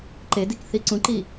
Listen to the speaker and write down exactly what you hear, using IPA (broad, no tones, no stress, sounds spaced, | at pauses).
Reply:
ǃ e d i k θ i ǀ ũ ǃ iː